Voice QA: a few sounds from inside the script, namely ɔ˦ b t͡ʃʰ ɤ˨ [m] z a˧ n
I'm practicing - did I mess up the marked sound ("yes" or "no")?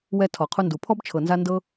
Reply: yes